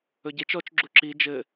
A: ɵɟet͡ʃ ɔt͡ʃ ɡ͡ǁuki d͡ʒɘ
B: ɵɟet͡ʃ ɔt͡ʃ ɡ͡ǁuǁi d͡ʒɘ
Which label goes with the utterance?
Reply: B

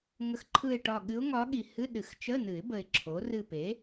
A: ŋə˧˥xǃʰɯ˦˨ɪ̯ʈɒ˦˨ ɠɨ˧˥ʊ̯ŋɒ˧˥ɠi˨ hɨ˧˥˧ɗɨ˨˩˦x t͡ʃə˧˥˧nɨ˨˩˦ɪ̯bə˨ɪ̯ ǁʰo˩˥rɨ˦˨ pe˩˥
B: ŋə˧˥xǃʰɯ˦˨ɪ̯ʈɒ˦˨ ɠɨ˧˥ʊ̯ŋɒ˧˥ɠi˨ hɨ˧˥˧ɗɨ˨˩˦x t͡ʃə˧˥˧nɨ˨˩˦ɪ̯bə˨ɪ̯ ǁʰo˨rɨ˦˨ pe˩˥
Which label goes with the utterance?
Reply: A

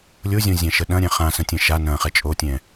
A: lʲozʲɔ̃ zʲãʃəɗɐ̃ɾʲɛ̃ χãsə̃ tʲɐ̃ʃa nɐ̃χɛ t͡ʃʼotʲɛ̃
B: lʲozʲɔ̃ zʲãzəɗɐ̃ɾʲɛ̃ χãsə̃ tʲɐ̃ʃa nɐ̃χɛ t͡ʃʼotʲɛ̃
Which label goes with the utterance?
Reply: A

